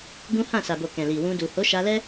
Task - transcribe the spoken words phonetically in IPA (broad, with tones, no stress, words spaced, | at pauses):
ɡũ˦ hã˦˨ sa˨bo˨ kɛ̃˨li˨ wũ˧du˨ ho˨˦ʃa˧lɛ˦